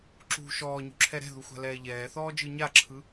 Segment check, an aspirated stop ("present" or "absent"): present